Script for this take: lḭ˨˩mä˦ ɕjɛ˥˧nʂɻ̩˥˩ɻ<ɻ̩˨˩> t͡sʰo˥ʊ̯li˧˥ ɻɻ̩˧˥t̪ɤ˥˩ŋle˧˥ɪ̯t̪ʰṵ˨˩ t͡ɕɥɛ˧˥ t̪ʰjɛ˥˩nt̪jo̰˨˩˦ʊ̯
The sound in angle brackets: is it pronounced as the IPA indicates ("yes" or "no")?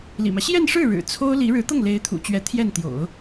yes